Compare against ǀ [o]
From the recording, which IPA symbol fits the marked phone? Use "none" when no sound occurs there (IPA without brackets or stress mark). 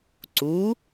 u